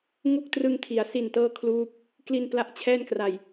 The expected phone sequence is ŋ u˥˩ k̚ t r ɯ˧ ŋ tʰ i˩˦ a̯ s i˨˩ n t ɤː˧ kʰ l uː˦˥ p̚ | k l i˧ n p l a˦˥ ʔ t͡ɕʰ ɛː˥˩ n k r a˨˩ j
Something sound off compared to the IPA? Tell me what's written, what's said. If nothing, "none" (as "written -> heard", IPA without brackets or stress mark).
none